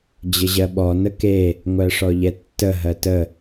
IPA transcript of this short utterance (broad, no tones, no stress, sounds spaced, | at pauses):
d͡ʑ ə ʑ ɜ ɓ ɔ n ə k e | ŋʷ ɜ ʂ ɔ ʎ ɛ tː ə ɦ ɜ t ə